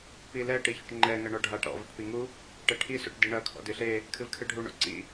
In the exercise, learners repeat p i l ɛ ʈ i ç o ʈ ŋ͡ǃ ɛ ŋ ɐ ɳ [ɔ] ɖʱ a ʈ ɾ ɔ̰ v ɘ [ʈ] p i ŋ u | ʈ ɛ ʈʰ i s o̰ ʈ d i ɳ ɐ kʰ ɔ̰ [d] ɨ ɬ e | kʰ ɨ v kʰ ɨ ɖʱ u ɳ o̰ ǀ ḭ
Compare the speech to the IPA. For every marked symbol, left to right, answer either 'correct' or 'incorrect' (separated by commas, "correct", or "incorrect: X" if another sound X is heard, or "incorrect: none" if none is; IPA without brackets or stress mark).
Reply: correct, correct, correct